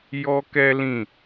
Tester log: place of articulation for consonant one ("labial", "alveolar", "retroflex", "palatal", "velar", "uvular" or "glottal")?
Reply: palatal